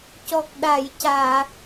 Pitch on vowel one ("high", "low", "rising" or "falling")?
low